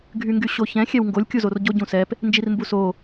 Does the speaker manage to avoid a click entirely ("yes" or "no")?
yes